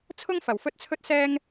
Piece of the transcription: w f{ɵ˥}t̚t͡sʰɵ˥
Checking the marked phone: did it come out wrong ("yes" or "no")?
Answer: no